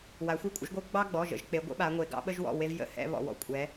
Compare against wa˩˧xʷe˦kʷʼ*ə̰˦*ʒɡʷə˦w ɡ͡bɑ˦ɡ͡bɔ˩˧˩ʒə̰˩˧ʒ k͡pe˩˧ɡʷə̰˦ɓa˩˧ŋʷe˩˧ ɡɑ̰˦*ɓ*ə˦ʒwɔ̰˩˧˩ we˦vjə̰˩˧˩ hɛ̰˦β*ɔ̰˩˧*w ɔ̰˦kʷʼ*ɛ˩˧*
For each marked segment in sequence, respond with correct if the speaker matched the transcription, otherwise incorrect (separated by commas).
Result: correct, correct, correct, correct